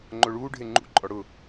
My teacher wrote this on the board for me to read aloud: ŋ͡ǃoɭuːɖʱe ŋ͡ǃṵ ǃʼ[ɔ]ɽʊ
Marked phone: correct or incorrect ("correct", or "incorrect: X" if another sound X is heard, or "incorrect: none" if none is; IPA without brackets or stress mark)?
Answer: correct